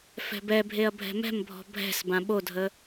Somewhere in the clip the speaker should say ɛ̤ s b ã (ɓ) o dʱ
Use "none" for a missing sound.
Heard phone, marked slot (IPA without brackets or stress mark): ɓ